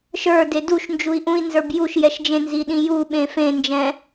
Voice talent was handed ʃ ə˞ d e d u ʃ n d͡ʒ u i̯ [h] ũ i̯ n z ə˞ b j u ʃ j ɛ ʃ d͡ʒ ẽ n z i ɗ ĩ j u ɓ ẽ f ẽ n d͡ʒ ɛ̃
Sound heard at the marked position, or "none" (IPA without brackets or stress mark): ʔ